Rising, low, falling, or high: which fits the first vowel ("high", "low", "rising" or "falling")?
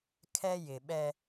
high